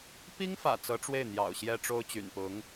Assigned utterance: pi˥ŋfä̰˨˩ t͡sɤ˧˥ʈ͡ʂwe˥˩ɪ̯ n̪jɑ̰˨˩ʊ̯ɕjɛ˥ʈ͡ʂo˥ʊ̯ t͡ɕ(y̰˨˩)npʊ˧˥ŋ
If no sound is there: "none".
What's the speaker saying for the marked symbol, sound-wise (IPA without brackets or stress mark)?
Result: y̰˨˩